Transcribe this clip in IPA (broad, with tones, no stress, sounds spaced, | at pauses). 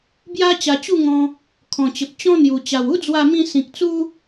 b j a˦ t͡ɕ a˧ t͡ɕ u˥˧ ŋ ɔ̃˧ | kʰ ɔ̃˨˩ t͡ɕ ə˨ p̚ t͡ɕ ɔ̃˦ n̪ j u˨˩ t͡ɕ a˨˩ w u˦ d͡z w a˧ m ĩ˧ s ĩ˨ k̚ t͡s u˦